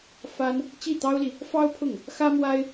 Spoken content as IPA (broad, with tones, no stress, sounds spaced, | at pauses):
f a˥ n | t͡ɕ i˥˩ t̪ ɑ˥ ʊ̯ l i˨ | f ɑ˥ ʊ̯ pʰ ʊ˥˩ ŋ | x ä˥ m w a˥ ɪ̯